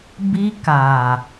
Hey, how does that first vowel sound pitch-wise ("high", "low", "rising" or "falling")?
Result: high